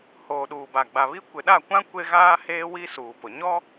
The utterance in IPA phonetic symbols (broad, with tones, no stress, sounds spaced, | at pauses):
h oː˨ ɗ uː˨ b a˨ ɡ͡b a˨ β i˦ kʷ ɪ˨ ɗ a˦˨ kʷ ã˦ kʷ e˦ ɣ aː˦ h eː˦ w i˦ s uː˨ p ʊ˨ ɲ ɔ˦